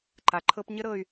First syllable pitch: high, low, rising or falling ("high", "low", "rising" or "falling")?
low